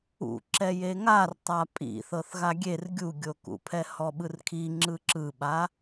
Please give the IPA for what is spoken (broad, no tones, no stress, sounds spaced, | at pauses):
ṵ ǁ ɛ j e ŋ a r tˤ a pʼ ḭ θ ɤ θ ɣ a ɡʲ e r ɡʲ u ɡʲ o k ṵ pʰ ɛ h ɔ ɓ ɯ r kʰ i ŋ͡ǁ ɯ ǁ ɯ ɓ a